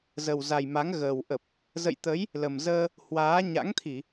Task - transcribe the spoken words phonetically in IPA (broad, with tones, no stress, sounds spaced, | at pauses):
z ə˨˩ w z a˨˩ j m a˨˦ ŋ ɣ əː˨˩ w ʔ ə˨˩ p̚ | z ə̰˧˨ j t̪ ə˨˦ j | l ə˨˩ m z əː˧ | h w aː˨˦ ɲ a̰˧˥ ŋ t̪ʰ i˧˩˨